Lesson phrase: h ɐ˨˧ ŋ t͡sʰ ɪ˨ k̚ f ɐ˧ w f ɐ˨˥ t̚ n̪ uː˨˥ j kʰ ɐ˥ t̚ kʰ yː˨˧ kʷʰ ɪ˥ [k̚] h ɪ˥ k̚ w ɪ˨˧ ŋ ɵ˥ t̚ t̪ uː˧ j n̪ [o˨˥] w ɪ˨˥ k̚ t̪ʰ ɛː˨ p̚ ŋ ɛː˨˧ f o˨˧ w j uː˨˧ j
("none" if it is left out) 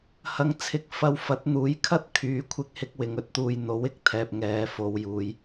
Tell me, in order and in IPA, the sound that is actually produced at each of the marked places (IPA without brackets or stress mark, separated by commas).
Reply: k̚, o˨˥